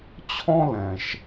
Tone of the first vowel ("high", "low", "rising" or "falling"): high